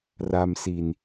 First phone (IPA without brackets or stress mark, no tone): r